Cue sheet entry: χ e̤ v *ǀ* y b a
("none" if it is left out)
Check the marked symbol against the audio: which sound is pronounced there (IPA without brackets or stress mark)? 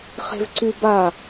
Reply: ǀ